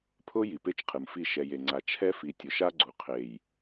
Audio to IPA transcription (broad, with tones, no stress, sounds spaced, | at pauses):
pʰ ʊ˦ j i˨ p e˦ t͡ʃ qʰ ɨ˨ m f i˦˨ ʃ ɛ˨ j e˨ ŋ͡ǀ a˨ t͡ʃʰ ɛ˦ f i˨ tʲ ʊ˨ ʃ a˦ ɡ͡ǀ u˨ qʰ e˨ j